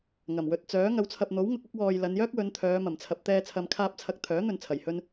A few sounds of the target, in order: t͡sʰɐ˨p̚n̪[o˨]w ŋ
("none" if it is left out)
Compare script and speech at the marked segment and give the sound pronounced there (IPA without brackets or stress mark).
o˨˥